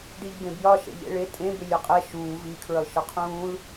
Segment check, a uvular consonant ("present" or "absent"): present